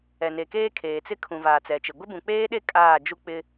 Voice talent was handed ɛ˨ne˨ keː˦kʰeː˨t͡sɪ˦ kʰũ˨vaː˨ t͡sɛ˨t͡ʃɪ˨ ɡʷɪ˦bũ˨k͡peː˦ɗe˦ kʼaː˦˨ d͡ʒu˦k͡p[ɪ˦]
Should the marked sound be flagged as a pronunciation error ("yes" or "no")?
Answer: no